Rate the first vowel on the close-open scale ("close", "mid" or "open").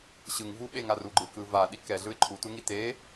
close